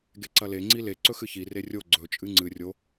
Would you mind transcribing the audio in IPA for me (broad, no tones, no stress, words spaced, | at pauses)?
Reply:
ɡeǀɐle ŋ͡ǀile ǀɵxɨçi rerʲo ɡ͡ǀɵ t͡ʃʼɨŋ͡ǀɨ rʲo